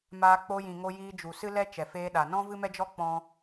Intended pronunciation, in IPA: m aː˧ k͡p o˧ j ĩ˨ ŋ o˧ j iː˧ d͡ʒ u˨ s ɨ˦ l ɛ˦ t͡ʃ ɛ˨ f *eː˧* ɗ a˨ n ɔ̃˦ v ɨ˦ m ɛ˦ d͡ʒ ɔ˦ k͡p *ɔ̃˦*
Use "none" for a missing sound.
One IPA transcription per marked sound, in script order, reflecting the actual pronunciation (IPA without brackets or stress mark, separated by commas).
eː˧, ɔ̃˦